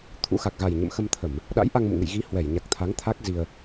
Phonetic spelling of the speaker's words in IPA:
t̪ʰ ṵ˧˥ x a˨˩ k̚ ɣ a˨˩ j ɲ ə̰˧˨ m x ə˧ m t̪ʰ ə˧˩˨ m | ɗ a̰˧˥ j ʔ a˧ ŋ m ṵ˧˨ ŋ ɨ̰˧˨ j ɣ i˨˦ h w ɛ˧˩ j ɲ a˨˩ k̚ t̪ʰ a˨˦ ŋ t̪ʰ a˦˥ k̚ z i˧ ə̯

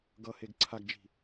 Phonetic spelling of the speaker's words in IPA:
ɡ ʌ h e ɡ ǀʰ a ɡ d͡ʒ i̤

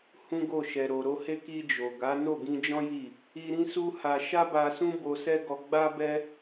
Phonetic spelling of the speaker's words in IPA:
h ũ˦ ɡ o˦˨ ʃ ɛ˨ ɾ o˨ ɾ o˧ h e˦ k i˧ d͡ʒ o˨ ɡ a˨˦ n o˦˨ ɡ ĩ˧ d͡ʒ ɔ̃˦ j i˦˨ | i˧ ɾ ĩ˦ s u˦ h a˧ ʃ a˦ b a˧ s ũ˦ b o˧ s ɛ˦ ɡ ɔ˧ ɡ͡b a˦ b ɛ˦

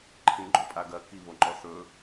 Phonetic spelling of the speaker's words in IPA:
ǃʰ ĩ ɡ͡ǃ ɵ pʼ a ɡ ɐ k i β o ŋ͡ǃ ɔ θ ɵ

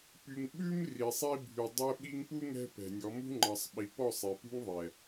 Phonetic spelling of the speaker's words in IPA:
p y˨ ŋ ɓ ʉ˦ m r i˨ sˤ i˦ bʱ y˨ dˤ ɛ˧ ɓ i˧ ŋ p u˦ ŋ ɛ̤˦ p ɛ̤˨ nʲ ɔ˨˦ m ṳ˦ ŋ͡ǃ ɑ˨ sˤ ɓ i˨ p ɔ˦˨ sˤ e˨ p ṳ˦ ŋ ðˤ ɛ˨

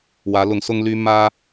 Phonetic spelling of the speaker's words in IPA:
w ä˧˥ l ʊ˧˥ ŋ s ʊ˥ ŋ l y˥ m ä˥

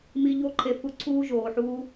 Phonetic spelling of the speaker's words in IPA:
m i˧ ʎ o˦ ǃʰ e˧ f u˧ ǀʰ uː˦ ʒ oː˨ ħ uː˦

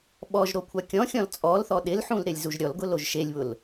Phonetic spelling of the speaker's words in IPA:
ɓ ɔ ʒ ɾ o kʷʰ a kʲ ɔ̃ xʲ ɔ̃ l t͡sʼ ɔ l θ ɔ ɗ ɪ l ħ ũ l ɾ ɪ lʲ z u ʒ ɾʲ ɔ l ɡ ʊ l o ʒ ʃ e lʲ β ʊ l

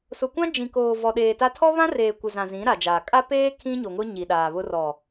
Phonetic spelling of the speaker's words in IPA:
s ʊ˨ kʷ ã˦ d͡ʒ ĩ˨ k oː˨ v ɔ˨ ɗ eː˨ t a˦ tʰ ɔ˦ β ã˦ r eː˨ kʷ ɪ˨ z ã˨ z ĩ˨˦ ɾ a˨ d͡ʒ aː˨ kʼ a˦ p eː˦ kʰ ĩ˦ ɲ o˨ ŋ ʊ˦ ɲ i˨ ɗ aː˨ β ʊ˦ r ɔ˨

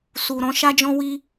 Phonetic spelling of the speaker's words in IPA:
s u˨ ɾ ɔ̃˧ ʃ a˦ d͡ʒ ɔ̃˦ w i˦

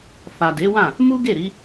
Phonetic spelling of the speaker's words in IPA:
f a˨ d e˨˦ w ã˦˨ | m u˦ ɡ e˦˨ ɾ i˨˦

